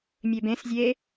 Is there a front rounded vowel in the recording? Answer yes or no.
yes